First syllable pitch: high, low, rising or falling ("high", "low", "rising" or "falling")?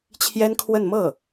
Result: high